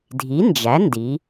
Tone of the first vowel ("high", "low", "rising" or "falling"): rising